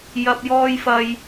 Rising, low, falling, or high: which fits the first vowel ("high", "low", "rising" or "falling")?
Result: high